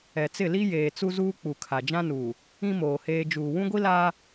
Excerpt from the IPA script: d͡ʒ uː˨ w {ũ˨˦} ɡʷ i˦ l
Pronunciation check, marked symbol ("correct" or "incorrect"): incorrect